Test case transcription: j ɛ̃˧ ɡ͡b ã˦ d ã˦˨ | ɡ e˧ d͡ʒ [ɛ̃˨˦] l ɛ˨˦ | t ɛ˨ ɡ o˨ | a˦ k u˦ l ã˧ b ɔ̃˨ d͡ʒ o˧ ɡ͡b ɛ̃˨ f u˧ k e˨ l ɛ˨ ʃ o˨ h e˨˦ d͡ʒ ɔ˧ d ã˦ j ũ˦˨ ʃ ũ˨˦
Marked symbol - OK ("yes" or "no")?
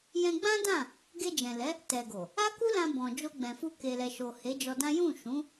no